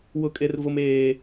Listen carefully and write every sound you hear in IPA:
w ʊ˦ kʼ e˦ r v ʊ˦ m eː˦

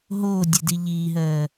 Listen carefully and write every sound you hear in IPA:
ɦ oː dʲ e d i ʎ iː ɦ ɜː

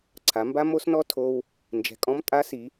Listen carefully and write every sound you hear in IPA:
ǀʰ a˩˧ m b a˥ m o˥ s n ɔ˥ tʰ o˧ w | n d͡ʒ ɛ̤˩ kʼ ɔ̃˧˥ m tʼ a˧˥ s i˩˧

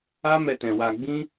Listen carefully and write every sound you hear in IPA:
a˦ m ɛ˧ t ɛ̃˨ w a˧ ɡ͡b ĩ˦

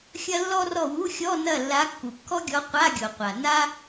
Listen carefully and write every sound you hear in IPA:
xʲ ɐ˥ lː ɔ˥ r ɔ˥˨ w u˧˥˧ xʲ ɔ˧˥˧ n ɐ˥˨ lː a˧˥ kː u˩ kː ɔ˥ ɡʲ ɔ˧˥ qʷ a˧˥˧ ɡʲ o˩ qʷ a˩ n a˥

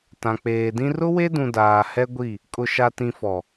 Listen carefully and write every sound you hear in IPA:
t ã˨ k͡p eː˨ d ĩ˦ r ʊ˦ w e˦ d ũ˨ d aː˨ h ɛ˦ ɡʷ i˦˨ | kʼ ʊ˨ ʃ a˨ t ĩ˨ f ɔ˨

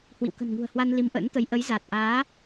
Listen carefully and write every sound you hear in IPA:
h w ḭ˧˨ w k ə̤˨˩ n ŋ ṳ˨˩ ə̯ h w a˧ n l i˨˦ m ʔ ə̰ː˧˥ n t̪ ə˨˦ j ʔ ə˨˦ j z a˨˩ t̚ ʔ aː˨˦

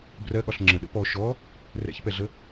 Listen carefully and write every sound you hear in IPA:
b r ɜ ɠ ɒ ɬ ŋ͡ǁ ə̃ ɗ ə̰ p ɔ ʃ ɔ | r ɛ̰ ç p ɛ ɮ ə

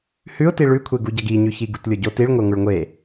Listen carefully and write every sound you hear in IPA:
h ʉ ʊ̯ t i ɭ ʉ kʷʰ e ɡ u ɟ ɐ ɡ i ɲ ʉ ç i ɡ u t lʲ o ɟ o t i ɭ ŋʷ e ŋʷ ɨ ɭ ŋʷ e

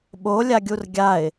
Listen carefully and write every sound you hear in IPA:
ɓ o lʲ a ɡʲ u r ɡʲ a ɪ̯

